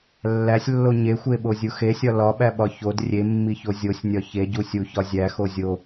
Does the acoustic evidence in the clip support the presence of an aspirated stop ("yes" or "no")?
no